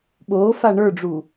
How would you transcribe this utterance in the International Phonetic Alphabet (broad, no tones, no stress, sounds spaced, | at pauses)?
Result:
ɓ oː f a ɳ ə˞ ɖ͡ʐ u